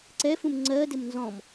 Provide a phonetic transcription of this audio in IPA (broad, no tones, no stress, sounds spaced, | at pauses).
ǀ ɛ f ũ m ŋ͡ǀ ɜ d ɪ m n z ɔ̃ m